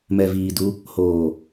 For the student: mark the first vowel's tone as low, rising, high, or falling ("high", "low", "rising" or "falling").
low